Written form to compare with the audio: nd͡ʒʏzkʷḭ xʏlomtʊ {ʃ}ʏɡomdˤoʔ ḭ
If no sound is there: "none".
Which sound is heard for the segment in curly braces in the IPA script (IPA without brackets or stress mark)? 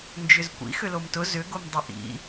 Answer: z